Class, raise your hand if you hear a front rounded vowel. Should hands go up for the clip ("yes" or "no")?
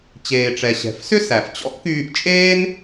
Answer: yes